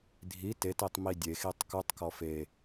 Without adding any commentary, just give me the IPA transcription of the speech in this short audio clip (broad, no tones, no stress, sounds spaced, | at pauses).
dʱ i t e t i tˤ m i dʲ e x i tˤ k u tˤ k ɔ f e